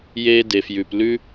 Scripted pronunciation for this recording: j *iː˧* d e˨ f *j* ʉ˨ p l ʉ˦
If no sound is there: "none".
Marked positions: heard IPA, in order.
eː˧, j

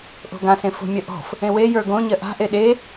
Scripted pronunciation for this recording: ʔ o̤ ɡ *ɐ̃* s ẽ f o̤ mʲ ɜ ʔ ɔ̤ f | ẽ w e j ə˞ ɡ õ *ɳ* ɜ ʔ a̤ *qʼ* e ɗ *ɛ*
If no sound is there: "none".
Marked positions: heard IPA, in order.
ã, ɲ, ʔ, e

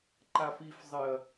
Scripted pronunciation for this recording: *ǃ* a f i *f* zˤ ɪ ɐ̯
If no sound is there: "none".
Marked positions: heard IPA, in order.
ǃ, f

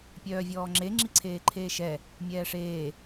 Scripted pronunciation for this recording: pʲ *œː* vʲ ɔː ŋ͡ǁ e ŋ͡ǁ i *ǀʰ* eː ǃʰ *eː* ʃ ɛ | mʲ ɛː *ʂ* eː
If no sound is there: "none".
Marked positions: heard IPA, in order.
œː, ǀʰ, eː, ʂ

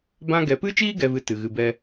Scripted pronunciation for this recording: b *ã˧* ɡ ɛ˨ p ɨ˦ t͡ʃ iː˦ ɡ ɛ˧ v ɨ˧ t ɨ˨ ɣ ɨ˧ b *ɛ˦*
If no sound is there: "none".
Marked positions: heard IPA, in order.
ã˧, ɛ˦

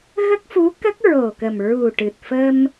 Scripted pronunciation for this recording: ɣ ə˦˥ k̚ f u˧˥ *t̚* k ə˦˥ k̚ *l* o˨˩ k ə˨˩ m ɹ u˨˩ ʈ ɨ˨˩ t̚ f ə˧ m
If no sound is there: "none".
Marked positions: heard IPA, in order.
none, ɹ

